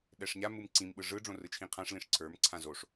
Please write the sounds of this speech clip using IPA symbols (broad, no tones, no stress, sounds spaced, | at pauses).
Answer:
ɗ ɛ ʂ ɲ a m ɯ m ǀ ĩ m ɓ ɯ ʐ ɯ ɖ͡ʐ õ r ɯ t͡ʃʰ ĩ qʰ ã ʂ l ĩ ʂ ǀʰ ə˞ m ǀʰ ã z o ʂ